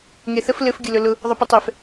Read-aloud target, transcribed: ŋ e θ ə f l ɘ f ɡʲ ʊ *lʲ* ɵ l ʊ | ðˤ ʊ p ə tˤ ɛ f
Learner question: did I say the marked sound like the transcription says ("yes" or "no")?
no